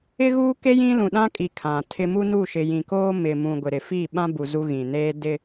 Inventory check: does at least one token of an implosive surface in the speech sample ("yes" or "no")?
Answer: yes